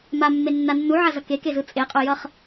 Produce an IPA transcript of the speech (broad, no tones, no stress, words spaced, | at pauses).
mamːenːa nːuʕazʌ kekezɯ t͡sʼeqʼojʌχ